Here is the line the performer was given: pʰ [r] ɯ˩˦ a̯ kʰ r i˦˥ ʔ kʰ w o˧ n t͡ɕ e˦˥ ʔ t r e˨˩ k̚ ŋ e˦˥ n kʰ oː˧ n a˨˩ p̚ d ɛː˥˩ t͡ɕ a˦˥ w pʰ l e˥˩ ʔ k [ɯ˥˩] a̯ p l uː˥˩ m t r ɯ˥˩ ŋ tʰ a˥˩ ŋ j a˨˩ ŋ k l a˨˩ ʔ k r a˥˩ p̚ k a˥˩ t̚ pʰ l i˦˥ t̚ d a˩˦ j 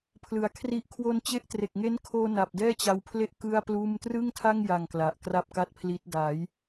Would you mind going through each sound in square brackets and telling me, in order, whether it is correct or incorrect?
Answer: incorrect: l, correct

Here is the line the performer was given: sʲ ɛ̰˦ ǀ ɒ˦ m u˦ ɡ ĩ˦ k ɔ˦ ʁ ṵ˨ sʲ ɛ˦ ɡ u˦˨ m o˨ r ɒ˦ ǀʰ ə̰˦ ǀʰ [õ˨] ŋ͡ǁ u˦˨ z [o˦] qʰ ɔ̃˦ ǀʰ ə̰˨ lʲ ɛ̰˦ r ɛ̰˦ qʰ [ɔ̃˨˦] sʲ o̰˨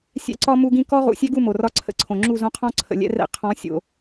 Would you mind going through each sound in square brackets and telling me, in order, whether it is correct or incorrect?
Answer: correct, incorrect: õ˦, correct

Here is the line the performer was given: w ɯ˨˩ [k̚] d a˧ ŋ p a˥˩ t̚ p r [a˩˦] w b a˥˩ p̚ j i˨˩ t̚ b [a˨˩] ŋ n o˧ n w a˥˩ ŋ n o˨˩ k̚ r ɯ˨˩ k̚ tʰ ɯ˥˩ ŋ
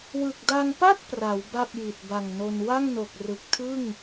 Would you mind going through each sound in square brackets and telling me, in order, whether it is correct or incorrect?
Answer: correct, correct, correct

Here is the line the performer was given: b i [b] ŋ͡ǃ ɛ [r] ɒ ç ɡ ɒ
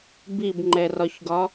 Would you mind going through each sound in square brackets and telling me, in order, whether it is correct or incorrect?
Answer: correct, correct

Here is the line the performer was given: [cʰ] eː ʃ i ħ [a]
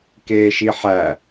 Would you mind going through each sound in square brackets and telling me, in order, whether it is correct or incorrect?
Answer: incorrect: k, incorrect: æ

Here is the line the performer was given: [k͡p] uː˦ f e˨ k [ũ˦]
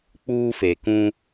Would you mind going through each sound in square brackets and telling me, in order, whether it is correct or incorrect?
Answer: correct, correct

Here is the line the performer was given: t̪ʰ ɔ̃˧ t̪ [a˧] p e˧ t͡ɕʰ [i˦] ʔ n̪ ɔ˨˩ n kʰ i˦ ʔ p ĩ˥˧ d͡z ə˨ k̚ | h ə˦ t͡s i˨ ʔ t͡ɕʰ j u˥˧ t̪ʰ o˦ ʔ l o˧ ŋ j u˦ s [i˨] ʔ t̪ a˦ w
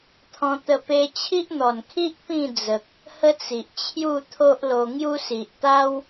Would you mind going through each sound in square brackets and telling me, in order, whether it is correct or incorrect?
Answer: incorrect: ə˧, correct, correct

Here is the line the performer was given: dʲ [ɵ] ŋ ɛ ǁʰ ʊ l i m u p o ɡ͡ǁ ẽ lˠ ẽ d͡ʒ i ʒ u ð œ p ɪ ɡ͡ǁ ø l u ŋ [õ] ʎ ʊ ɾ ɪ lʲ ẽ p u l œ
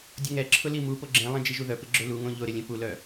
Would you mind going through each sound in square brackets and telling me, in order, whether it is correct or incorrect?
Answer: incorrect: ʊ, correct

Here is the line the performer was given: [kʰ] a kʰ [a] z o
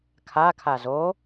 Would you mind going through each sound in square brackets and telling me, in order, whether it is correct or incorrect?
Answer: correct, correct

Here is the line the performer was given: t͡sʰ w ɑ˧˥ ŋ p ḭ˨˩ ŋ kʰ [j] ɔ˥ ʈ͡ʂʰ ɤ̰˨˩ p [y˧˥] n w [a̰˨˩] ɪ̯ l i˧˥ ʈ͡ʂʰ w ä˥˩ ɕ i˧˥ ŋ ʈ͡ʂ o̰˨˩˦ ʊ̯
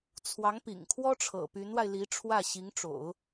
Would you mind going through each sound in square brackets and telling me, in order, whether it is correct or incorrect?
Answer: incorrect: w, correct, incorrect: a˧

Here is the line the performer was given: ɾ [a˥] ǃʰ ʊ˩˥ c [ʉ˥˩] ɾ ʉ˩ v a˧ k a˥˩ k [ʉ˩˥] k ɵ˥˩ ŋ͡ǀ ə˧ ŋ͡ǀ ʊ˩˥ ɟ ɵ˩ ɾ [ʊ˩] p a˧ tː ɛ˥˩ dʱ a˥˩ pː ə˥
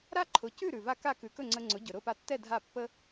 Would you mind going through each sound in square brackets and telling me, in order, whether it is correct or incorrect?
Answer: correct, correct, correct, incorrect: ʊ˥˩

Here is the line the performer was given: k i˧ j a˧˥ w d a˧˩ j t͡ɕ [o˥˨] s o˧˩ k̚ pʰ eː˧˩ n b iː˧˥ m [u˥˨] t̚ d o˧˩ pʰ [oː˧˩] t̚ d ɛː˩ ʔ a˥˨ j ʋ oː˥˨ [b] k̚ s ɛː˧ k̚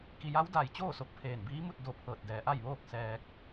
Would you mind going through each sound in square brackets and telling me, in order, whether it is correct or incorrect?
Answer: incorrect: oː˥˨, correct, incorrect: ɤː˧˩, incorrect: none

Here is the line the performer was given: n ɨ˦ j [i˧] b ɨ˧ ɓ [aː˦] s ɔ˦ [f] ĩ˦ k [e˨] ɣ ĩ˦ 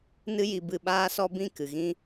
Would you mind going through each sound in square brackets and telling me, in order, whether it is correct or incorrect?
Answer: correct, correct, incorrect: b, incorrect: ɨ˨

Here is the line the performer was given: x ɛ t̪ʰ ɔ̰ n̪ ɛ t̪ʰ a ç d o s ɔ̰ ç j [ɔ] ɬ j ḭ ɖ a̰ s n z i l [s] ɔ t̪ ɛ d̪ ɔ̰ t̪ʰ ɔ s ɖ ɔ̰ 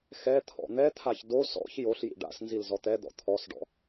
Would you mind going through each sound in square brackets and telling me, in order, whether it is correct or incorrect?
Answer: incorrect: o, incorrect: z

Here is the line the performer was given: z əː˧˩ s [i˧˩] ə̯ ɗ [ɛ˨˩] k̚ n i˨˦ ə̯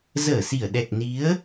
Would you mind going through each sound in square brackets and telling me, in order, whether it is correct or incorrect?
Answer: correct, correct

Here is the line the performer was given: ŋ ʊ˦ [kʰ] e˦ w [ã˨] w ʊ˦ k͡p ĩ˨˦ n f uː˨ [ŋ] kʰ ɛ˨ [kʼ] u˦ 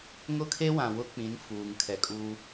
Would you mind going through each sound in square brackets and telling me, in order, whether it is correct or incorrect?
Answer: correct, correct, correct, correct

